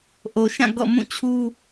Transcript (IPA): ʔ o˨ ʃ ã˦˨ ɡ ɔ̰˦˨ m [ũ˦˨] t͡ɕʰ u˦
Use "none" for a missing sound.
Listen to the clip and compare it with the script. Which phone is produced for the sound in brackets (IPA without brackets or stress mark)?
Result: ũ˦˨